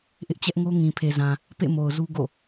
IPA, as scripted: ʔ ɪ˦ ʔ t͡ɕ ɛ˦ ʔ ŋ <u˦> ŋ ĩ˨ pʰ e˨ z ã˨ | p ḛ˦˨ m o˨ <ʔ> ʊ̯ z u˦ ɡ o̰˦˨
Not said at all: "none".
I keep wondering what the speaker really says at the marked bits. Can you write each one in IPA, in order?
o˦, none

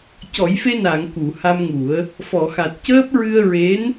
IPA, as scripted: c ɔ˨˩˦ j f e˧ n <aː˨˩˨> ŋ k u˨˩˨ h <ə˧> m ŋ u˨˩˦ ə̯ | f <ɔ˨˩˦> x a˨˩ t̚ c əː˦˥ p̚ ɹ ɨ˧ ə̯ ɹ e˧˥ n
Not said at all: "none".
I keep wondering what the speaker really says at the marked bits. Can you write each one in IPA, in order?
aː˨˩˨, a˧, ɔ˨˩˨

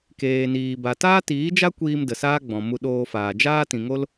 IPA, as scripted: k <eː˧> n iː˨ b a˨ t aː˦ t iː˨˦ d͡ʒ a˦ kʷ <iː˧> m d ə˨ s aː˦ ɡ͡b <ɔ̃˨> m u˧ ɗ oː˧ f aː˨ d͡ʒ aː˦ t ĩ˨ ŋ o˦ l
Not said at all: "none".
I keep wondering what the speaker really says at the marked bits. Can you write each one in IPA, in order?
eː˨, iː˧, ɔ̃˨

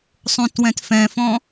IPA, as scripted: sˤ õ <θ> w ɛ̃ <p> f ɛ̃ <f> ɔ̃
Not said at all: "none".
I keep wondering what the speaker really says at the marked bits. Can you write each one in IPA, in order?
t, t, f

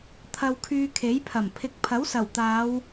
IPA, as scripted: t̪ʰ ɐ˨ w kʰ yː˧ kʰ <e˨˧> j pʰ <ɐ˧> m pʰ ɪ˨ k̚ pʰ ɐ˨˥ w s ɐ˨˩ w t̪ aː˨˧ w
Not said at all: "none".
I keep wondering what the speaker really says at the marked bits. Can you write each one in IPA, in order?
e˨˥, ɐ˨˩

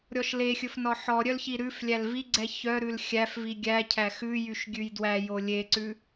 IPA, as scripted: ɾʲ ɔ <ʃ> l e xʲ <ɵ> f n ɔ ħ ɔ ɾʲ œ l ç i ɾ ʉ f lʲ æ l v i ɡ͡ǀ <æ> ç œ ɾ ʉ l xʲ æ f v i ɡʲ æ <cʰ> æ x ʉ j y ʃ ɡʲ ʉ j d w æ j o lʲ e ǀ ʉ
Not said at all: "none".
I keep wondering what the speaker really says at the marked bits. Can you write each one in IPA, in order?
ʃ, ɵ, ɛ, cʰ

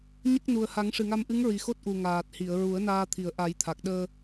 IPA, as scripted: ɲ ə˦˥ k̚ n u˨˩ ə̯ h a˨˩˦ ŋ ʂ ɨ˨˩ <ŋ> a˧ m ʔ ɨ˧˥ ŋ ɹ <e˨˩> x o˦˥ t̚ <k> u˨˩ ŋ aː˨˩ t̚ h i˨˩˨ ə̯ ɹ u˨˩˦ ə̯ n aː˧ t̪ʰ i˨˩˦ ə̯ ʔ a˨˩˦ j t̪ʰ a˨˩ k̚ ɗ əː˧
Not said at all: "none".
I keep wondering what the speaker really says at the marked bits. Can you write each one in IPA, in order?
ŋ, i˨˩, ʔ

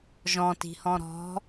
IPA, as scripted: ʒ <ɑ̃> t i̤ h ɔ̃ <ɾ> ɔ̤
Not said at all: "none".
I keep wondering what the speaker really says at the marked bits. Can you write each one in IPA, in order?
ɔ̃, ɾ

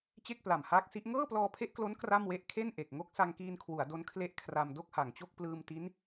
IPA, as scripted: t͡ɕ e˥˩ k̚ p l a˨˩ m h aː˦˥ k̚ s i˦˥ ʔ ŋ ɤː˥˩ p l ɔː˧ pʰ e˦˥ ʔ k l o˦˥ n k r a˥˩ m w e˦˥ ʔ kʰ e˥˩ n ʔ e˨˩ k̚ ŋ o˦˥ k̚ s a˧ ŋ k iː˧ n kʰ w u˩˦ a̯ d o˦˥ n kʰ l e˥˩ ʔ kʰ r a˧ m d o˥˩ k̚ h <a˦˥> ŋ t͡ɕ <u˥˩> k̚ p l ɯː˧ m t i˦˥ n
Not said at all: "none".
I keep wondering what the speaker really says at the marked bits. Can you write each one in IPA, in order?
a˨˩, o˥˩

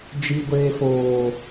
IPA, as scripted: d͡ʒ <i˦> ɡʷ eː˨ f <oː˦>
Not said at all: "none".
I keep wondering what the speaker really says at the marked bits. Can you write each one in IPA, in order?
i˨, oː˨

